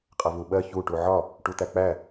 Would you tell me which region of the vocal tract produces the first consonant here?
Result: uvula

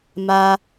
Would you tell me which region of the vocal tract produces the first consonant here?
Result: lips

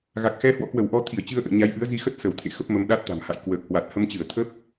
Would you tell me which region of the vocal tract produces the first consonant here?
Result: velum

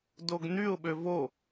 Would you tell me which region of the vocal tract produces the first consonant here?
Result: tongue tip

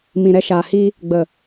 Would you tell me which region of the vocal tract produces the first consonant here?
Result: lips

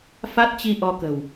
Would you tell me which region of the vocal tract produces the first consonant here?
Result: lips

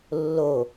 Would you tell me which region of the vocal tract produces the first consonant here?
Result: tongue tip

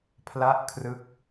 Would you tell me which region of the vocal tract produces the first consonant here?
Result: lips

